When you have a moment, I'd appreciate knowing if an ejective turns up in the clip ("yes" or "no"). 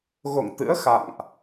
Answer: no